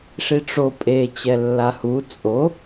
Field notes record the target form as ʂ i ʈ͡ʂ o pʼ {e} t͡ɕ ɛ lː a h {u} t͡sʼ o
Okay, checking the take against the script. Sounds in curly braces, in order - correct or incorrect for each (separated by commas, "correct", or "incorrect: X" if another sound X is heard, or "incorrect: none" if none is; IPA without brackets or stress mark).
correct, correct